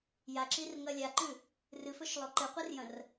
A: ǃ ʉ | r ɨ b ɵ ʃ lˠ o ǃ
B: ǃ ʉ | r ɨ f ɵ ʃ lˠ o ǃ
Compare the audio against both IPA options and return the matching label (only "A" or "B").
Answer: B